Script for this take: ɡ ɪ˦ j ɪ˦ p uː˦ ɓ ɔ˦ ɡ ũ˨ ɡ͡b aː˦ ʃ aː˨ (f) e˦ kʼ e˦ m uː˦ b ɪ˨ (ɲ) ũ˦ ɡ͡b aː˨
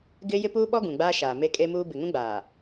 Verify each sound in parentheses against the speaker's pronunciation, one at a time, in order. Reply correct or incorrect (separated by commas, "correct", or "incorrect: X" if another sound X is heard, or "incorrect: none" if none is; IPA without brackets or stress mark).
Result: incorrect: m, incorrect: ŋ